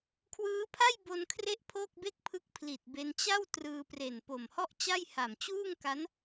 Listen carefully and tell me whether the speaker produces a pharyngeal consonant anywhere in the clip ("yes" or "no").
no